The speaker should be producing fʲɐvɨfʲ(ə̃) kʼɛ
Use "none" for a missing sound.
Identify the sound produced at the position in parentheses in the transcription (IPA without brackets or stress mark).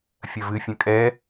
ə̃